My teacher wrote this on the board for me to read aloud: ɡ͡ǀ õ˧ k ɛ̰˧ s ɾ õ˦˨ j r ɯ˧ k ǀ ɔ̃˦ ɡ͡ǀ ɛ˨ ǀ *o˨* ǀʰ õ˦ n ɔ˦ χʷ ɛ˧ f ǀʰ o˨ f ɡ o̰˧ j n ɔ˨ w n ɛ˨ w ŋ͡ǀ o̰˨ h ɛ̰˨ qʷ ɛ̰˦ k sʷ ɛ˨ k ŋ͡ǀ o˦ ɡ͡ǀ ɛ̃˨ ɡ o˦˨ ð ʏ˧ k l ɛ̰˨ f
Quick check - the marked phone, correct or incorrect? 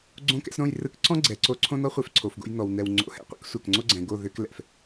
incorrect: o˧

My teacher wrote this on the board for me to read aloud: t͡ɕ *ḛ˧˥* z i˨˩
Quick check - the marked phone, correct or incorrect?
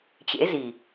correct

